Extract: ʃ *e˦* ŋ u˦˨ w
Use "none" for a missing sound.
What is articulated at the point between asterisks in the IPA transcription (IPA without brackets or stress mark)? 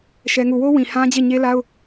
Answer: ɛ˦